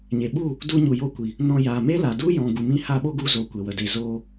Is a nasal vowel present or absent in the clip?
present